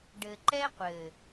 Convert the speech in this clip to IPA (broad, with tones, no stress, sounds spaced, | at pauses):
ɖ ɘ˨ ǃ ɛ˦ qʷ ɘ˨